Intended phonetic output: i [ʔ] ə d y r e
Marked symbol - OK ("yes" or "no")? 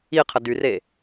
no